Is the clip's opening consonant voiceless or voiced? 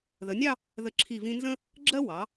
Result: voiced